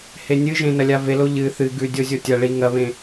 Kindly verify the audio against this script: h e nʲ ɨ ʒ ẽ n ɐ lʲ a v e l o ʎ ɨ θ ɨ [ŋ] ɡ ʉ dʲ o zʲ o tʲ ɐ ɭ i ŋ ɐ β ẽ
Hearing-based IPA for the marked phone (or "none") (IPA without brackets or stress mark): none